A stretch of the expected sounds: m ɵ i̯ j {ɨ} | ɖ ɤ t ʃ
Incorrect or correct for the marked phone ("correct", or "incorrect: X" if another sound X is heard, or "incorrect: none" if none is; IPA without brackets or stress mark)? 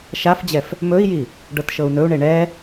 incorrect: i